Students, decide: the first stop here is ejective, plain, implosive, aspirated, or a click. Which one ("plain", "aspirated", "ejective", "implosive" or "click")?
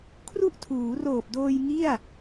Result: aspirated